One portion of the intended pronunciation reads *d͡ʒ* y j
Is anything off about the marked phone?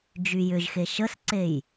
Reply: no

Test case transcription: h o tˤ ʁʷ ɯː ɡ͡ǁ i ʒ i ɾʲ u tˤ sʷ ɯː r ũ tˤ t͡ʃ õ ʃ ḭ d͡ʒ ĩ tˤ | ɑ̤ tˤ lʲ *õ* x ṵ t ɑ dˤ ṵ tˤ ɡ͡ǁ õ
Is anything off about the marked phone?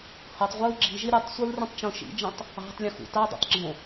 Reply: yes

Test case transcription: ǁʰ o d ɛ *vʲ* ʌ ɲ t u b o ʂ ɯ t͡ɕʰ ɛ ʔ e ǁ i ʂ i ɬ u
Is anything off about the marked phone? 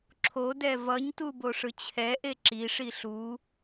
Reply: yes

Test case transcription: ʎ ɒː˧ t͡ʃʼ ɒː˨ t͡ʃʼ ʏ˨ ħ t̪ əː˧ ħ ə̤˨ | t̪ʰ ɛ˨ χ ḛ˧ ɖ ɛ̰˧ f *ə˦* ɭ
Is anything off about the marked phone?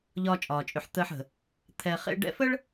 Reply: no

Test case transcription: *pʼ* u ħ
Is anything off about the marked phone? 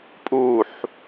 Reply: no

